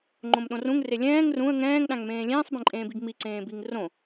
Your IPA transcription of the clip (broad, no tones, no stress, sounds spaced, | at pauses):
ŋ͡ǃ õ m ɗ õ r ũ ŋ r e lʲ ɛ̃ː ŋ r ũ ə̯ ŋ ɛ̃ː ŋ ɗ ã ŋ m ẽː lʲ ẽː sˤ b ẽ ǃʼ ẽː b i ɡ m i ǀ ẽː b i ŋ r õ